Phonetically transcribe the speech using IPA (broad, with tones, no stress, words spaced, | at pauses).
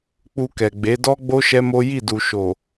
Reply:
k͡pu˧kɛ˨ɡ͡be˨˦ dɔ˦ɡ͡bo˦ ʃɛ˦mo˦ ji˦˨du˨ʃo˨